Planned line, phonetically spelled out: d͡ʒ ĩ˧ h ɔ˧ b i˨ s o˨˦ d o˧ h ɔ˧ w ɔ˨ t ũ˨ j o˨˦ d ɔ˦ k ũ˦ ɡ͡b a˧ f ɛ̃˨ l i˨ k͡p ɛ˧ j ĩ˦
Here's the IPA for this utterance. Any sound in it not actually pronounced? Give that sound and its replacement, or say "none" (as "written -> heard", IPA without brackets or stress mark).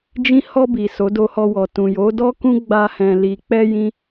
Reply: f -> h